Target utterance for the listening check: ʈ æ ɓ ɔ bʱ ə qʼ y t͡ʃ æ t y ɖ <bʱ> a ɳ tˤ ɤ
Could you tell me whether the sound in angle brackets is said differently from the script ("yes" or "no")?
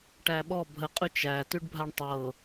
no